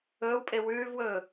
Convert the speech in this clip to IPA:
ɵː w pʼ e w ʉː v w ɵː

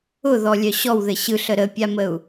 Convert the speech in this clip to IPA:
ʊ ð ɔ lʲ œ ɕ ɔ w ð ɘ ɕ ɯ ɬ ə ɾ ə pʲ a m ə u̯

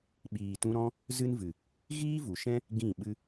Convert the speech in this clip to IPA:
ɓ iː˨ t ũ˧ ɾ ɔ̃˦ | z ɨ˦ n v ɨ˨ | ɣ iː˦ v u˨ ʃ ɛ̃˦ | ɡ ĩ˦˨ ɓ ɨ˦

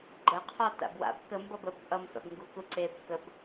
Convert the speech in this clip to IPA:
ɡ͡ǃ ə qʰ ɒ t a̰ b w a̰ b k ə m b ʌ b ə b ʔ ʌ m f a̰ b ŋ ɡ u k u ǀ e b k ə b

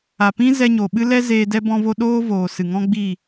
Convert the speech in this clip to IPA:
a˨ p ĩ˦ z ɛ˧ ɲ o˨ ɓ ɨ˦ l ɛ˦ z eː˧ d ɛ˧ b ɔ̃˧ v o˧ ɗ oː˦ v oː˨ s ɨ˨ ŋ ɔ̃˦ ɡ͡b i˦˨

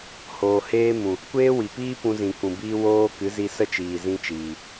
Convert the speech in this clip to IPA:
h oː˨ h eː˦ m ũ˨ | kʷ eː˦ w i˨ p iː˦ p ũ˧ z ĩ˨ k ũ˨ b iː˦ w oː˦ k ɨ˨˦ z i˧ s ə˦ t͡ʃ iː˨ z ĩ˧ t͡ʃ iː˨

